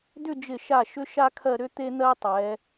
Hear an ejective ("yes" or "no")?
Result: no